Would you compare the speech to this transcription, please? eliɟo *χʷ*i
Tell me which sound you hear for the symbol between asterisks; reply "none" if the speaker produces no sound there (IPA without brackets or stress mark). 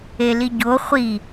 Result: χʷ